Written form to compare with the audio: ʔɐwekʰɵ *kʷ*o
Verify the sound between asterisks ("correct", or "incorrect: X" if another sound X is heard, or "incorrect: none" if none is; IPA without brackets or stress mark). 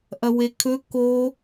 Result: incorrect: k